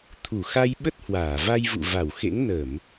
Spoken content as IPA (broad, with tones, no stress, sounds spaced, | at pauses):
t̪ʰ u˧˩ x a˧ j ɓ ə˦˥ t̚ h w aː˧˩ v a˧ j v ṵ˧˨ v a˧˩ w x ḛ˧˥ ŋ n ə˧˩˨ m